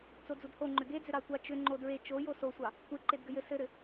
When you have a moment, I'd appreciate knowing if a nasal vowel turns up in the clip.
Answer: no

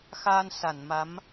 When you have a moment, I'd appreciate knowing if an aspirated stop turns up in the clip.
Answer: no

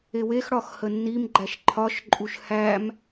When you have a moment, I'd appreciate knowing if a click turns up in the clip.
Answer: yes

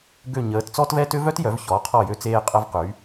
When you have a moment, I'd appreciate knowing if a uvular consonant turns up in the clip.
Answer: yes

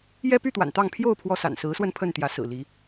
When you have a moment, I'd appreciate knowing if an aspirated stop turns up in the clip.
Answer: yes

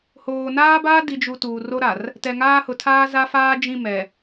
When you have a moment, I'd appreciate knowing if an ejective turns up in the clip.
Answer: no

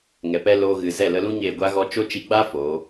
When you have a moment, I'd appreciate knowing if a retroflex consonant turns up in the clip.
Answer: no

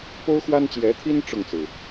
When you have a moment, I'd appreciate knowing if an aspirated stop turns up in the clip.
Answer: yes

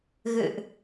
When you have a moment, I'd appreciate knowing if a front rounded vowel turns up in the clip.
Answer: no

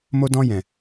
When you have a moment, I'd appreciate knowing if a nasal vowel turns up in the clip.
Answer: yes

